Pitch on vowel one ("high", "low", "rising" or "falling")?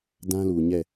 high